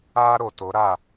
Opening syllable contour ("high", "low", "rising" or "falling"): high